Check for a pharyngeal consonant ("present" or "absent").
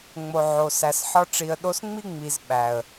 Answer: present